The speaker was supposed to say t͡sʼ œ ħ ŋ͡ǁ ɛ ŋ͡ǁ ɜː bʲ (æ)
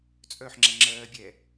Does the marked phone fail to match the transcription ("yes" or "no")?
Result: yes